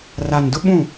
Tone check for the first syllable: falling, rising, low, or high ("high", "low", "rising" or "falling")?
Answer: low